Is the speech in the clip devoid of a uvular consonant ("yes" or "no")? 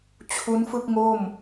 yes